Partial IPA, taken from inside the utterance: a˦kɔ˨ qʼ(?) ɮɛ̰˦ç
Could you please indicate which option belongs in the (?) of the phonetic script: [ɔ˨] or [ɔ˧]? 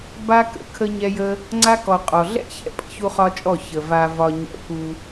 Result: ɔ˨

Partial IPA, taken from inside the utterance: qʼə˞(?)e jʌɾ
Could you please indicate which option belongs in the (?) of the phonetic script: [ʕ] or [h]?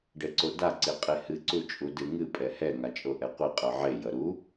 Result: ʕ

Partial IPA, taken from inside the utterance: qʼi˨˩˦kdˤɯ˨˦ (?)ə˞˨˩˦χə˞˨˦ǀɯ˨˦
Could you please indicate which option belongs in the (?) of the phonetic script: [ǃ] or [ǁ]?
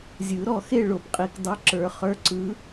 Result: ǁ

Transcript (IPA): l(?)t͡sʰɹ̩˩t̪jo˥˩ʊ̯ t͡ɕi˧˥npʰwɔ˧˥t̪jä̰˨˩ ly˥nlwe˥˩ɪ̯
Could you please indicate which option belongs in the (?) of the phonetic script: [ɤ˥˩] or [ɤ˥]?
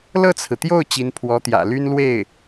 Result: ɤ˥˩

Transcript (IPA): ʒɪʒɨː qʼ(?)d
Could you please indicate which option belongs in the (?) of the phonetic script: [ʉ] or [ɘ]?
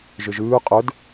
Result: ɘ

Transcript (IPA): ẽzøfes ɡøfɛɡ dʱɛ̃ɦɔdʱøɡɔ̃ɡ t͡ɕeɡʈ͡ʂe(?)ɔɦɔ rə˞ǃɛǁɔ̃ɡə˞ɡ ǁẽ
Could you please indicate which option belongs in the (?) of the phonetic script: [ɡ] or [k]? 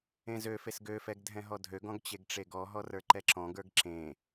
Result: ɡ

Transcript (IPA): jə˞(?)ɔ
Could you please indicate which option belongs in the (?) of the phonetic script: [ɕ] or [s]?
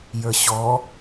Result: ɕ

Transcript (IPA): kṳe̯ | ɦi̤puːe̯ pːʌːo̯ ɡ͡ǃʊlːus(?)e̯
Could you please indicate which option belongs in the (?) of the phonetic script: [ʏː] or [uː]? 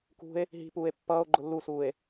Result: uː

